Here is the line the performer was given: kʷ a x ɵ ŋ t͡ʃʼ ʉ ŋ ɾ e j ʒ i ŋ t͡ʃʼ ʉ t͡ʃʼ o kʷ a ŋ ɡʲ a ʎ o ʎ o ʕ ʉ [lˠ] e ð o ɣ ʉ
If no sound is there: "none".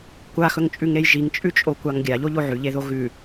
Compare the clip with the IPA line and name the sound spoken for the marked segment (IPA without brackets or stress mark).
ʎ